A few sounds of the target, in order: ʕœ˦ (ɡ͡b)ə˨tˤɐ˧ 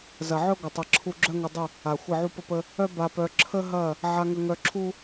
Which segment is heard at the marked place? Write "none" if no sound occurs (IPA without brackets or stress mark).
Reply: ɡʷ